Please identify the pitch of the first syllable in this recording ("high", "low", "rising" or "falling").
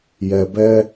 low